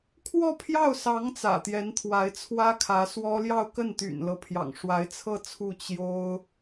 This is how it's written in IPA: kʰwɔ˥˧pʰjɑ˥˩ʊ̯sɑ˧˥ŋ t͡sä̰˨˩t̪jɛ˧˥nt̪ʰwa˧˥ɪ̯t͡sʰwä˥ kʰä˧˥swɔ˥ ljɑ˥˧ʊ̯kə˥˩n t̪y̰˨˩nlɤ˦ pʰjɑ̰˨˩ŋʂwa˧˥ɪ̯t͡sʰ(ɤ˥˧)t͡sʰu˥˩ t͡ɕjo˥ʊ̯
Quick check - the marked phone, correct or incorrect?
correct